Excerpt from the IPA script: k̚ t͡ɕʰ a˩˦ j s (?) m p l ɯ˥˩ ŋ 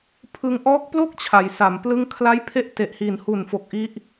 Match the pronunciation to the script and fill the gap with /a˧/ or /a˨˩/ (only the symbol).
a˨˩